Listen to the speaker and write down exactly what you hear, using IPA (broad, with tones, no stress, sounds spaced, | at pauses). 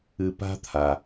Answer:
ɨ˨ p a̤˦ t̪ʰ a˩